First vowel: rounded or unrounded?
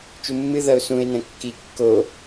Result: rounded